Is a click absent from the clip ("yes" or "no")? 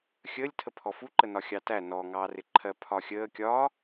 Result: no